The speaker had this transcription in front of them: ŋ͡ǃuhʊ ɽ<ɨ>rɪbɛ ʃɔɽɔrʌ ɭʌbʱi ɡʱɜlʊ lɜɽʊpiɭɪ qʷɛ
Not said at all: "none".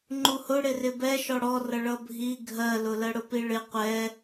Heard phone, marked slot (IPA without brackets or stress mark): ɪ